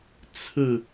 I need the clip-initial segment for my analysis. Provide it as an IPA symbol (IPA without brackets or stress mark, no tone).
t͡sʰ